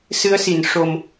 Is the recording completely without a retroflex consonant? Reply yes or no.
no